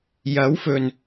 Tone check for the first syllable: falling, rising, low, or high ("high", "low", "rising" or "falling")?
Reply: rising